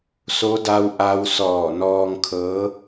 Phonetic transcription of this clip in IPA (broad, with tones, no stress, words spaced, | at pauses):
so˧˥da˧w ʔa˧wsɔː˧˩nɔː˧ŋkʰɤː˧˥